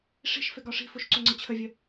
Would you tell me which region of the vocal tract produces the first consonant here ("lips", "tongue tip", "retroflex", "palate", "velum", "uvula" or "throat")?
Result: retroflex